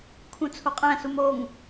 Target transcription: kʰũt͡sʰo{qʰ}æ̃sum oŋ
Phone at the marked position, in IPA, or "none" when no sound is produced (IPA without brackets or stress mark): qʼ